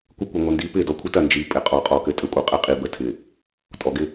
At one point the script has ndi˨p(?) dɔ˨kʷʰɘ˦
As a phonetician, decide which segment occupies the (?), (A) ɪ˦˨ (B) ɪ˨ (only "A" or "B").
A